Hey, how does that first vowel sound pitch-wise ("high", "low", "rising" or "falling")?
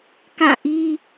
falling